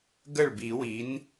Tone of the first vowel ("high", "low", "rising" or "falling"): falling